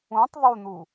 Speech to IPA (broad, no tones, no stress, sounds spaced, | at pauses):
ũ tˤ ðˤ u n̪ u